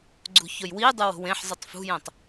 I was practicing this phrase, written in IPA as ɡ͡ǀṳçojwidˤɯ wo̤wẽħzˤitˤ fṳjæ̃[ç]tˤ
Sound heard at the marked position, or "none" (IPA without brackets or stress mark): none